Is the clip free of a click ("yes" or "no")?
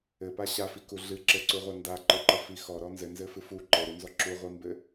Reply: no